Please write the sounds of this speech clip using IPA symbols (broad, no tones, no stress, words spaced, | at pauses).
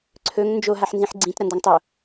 ǀʰɵŋ nd͡ʒo ɦaħnzĩħɡ͡ǀĩt ɾɐndaŋtˤo